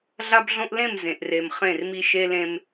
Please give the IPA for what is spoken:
ɮa˦bɮõ˦ʔ lẽ˦˨m zẽ˨ʔre˨m χẽ˦˨rmi˦ ʃe˦lẽ˦m

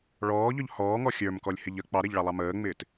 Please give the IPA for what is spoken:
ɭɔːʎɔʎ hɔːŋɔ xʲə˞mkɔlʲhɪʎ ə k͡pɑɾɛʎɭɑlˠɑ məːŋ͡mɪːt

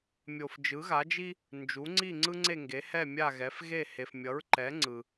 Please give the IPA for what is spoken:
mʲo˨fd͡ʒɯ˩˥ɣa˩˥d͡ʒi˦ | nd͡ʒu˩˥ŋ͡ǀi˥˩ŋ͡ǀɯ˦ ŋ͡ǀe˥˩ŋɡe˩˥ hɛ˥˩mʲa˥˩ɣɛ˩˥f ɣe˥˩he˨f mʲʌ˩˥ɹǃɛ˩˥ ŋ͡ǀɯ˨

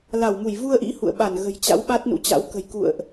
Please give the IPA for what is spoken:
la˧˩wmu˧˩jvu˧ə̯ʔḭ˧˥ hṵ˧˨ə̯ɓa˧˩n ɣə̤˨˩jt͡ɕa̰˧˥w ɓa˦˥t̚nṵ˧˥t͡ɕa̰˧˥w kə̤˨˩jkṵ˧˨ə̯ʔ

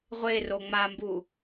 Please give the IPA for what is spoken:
ʁʷero ŋ͡mambu

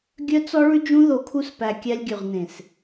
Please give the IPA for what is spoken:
ɡʲœ˦t͡sɔ˦ɭʉ˦d͡ʒũ˦ ðo˧kʰu˦spæ˧ kʲæ˧lʲɡʲʉ˨ʁnẽ˨s

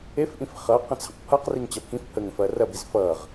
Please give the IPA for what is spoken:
efʔĩf χʌ qə̃t͡sʰə̃qpʰʌq riŋt͡ɕɐpʰĩf pʰəŋə̃f ɐːrɐbiz fʌːʁ

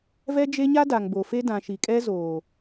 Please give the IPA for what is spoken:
vɛ˦d͡ʒe˦ɲa˦ da˨ŋbo˨fe˦ dã˨ʃi˨kʼɛ˦zoː˨

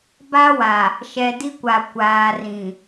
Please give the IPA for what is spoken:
ba˦wa˨ | ʃɛ˨di˦kʷa˨ kʷaː˨rĩ˨

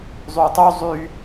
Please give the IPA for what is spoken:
zˤyʊ̯tˤu zˤy

